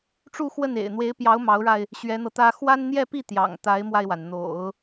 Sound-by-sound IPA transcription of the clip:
ʈ͡ʂu˥˧xwə˥˩nḛ˨˩ɪ̯ n̪we˧˥ɪ̯pjɑ˧˥ʊ̯ mɑ˧˥ʊ̯ɻa˧ɪ̯ | ɕɥɛ˧˥n̪ɤ˧t̪ä˥ xwa˥nn̪jɛ˥˧pi˥˩ t̪jɑ̰˨˩ŋt̪a˧˥ɪ̯mwa˧ɪ̯wa˩n n̪o̰˨˩˦ʊ̯

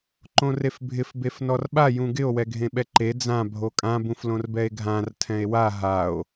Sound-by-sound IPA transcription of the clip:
ǃõrefbʱɪf befnɔrɓa jũɡɪo̯ wɛɡʱẽɓɛǃe d͡zã bʱokʼã bũflõrbɛe̯ɡʱãr tʰɛ̃e̯wa ɦao̯

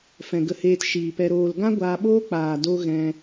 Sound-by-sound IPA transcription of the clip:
fɛ̃˨ɡə˧heː˧t ʃiː˨pɛ˧ ɾoː˧l ɡã˦ɡʷaː˧ɓoː˦ k͡paː˨do˧ ɣɛ̃˧

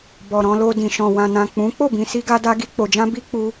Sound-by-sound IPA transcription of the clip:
bɔ˨ɾɔ̃˧lo˧ dĩ˨ʃɔ̃˨ wã˨nã˨ k͡pũ˨˦ k͡po˦˨bĩ˨si˧ɡa˧ da˧ɡi˧k͡po˨d͡ʒã˧ bi˦k͡pu˧

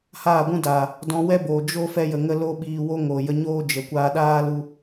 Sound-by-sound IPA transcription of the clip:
haː˦˨ɡʷũ˦ daː˨ | dɔ̃˧wɛ˦boː˨ d͡ʒo˦ fɛ˦jə˨ŋə˦ lo˦ɓiː˧wo˦ŋo˨ jə˧ɲoː˦d͡ʒə˨ kʷaː˧ɗaː˦lu˧

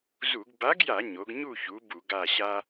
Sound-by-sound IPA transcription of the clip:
zu˧˩˧ɡ ba˨˥ɡja˧˩˧ ɲo˩˧ɡɲu˦˨çu˩˧ bu˧˩˧ ɡa˦˨ɕa˥

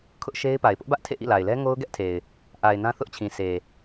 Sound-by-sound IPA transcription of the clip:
kʰʊ˦ʔʃe˦ɪ̯pa˨ɪ̯ pʊ˦ʔbä˦ʔ tʰḛ˦˨ʔḭ˦˨la˨ɪ̯lɛ˦ ŋo˦ʊ̯ɡɛ˦ʔtʰe˨ɪ̯ | ʔa˨ɪ̯ nã˦θʊ˦ʔt͡ɕʰĩ˨ sʰe˨

